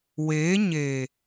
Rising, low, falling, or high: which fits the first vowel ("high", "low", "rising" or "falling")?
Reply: rising